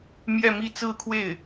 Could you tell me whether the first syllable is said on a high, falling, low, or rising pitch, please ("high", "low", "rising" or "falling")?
falling